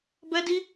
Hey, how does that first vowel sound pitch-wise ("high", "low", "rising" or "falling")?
high